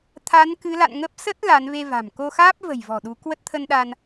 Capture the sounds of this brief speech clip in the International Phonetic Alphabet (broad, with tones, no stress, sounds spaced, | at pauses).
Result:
t̪ʰ a˨˦ n k ɨ˨˦ l a̰˧˨ n ŋ ə˦˥ p̚ s ə˦˥ t̚ l aː˨˦ n v e˧ v a̤˨˩ m k o˧ x aː˦˥ p̚ v ə̤˨˩ j v ɔ̤˨˩ ɗ u˨˦ k w ə˦˥ t̚ t̪ʰ ə˧ n ɗ a˧ n